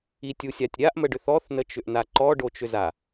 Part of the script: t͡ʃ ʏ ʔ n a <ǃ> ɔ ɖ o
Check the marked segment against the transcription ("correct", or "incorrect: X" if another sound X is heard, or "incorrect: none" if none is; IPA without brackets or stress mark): correct